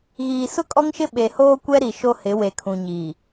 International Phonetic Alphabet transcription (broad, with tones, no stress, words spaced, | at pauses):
ɣiː˨sʊ˦kʼɔ˦ŋʃɪ˦ ɓe˨hoː˦kʷɛ˦ ɾi˨ʃo˦hɪ˨˦ we˨kʰũ˨ɲiː˨